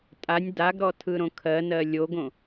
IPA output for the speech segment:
tʼ a nʲ d a ɡ ɾ ɔ tʰ ɯ ɾ õ kʰ ɜ n ɜ lʲ o ɡ õ

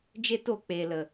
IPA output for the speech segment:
d͡ʒ e˦ t o˦˨ k͡p eː˨ l ə˨

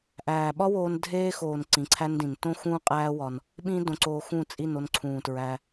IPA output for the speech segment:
ʔ æː˨ ɓ ɒ˦ w oː˧ n dʱ eː˦ x oː˨ n ǀ ĩ˨˦ ǀʰ æ˦ n d ĩ˨ n t õ˦ x ũː˦ qʼ æː˦ w ɒ˧ n | ɓ ĩ˦ d õ˧ ǀ oː˧ x ũ˦˨ t͡sʼ i˦˨ n o˧ n ǀʰ ũː˨ t ɹ æ˧

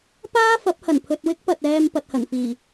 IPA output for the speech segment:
p aː˥ f ɐ˨˥ p̚ h ɐ˨˩ n pʰ ɵ˨ t̚ w ɪ˥ k̚ p ɐ˨ t̚ ɛː˨ m p ɐ˨ t̚ h ɐ˨˩ n f iː˨˩

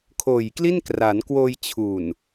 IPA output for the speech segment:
kʰ oː˨˩ j k l i˥˩ n k r a˩˦ n k w oː˧ j t͡ɕʰ u˨˩ n

